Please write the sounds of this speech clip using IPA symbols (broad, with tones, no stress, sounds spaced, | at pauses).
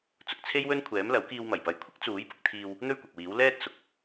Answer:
t͡s ʊ˨ k̚ t͡sʰ e˥ j w ɵ˥ n kʷʰ ɛː˨˥ m l ɐ˨˥ w k iː˧ w m ɐ˨˩ j p ɐ˨˧ j kʷʰ ɪ˥ k̚ t͡s uː˨˥ j p ʊ˧ k̚ t̪ʰ iː˧ w | n̪ ɵ˥ ɥ kʷ ɐ˨ k̚ w iː˨˥ w l ɛː˥ t̚ s ʊ˨˥ k̚